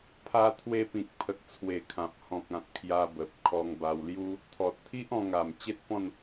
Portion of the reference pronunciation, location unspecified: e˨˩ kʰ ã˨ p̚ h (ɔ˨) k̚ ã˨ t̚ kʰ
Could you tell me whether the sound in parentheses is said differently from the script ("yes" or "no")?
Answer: yes